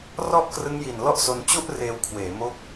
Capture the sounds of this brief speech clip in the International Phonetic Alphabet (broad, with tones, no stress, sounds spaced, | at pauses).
r ɔ˥˩ ʔ k r ɯ˦˥ ŋ j i˨˩ n l ɔ˥˩ ʔ s o˧ n t͡ɕ u˥˩ ʔ r eː˧ w kʰ w eː˩˦ m o˦˥ k̚